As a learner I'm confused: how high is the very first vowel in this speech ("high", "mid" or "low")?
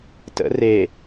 mid